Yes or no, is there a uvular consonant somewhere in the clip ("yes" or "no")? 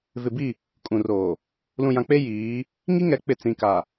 no